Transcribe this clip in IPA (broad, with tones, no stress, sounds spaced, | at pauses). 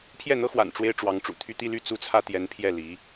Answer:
pʰ j ɛ˥˩ n̪ ɤ˥ x w a̰˨˩ n ʈ͡ʂ w e˥ ɪ̯ ʈ͡ʂ w ɑ˧˥ ŋ ʈ͡ʂ ṵ˨˩ t̪ʰ y˥˧ t̪ i˥˧ l y˥˩ t͡s u˥ t͡sʰ ä˥ t̪ j ɛ˧˥ n pʰ j ɛ˥˩ l i˧˥